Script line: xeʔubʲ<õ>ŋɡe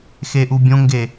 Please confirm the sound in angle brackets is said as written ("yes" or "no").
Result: yes